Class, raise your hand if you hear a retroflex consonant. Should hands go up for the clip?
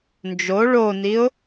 yes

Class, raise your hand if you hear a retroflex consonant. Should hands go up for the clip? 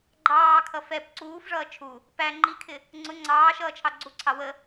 yes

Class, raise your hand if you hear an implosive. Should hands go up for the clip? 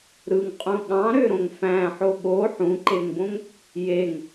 yes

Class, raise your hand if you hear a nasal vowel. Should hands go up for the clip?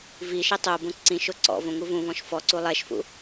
yes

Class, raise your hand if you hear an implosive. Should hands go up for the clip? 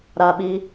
yes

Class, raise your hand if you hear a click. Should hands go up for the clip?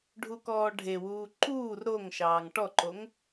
yes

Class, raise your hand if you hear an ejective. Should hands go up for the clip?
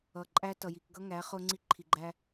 yes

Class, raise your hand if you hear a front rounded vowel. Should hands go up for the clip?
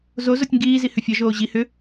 yes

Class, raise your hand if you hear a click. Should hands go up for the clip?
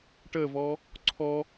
yes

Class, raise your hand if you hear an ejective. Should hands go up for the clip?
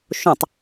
no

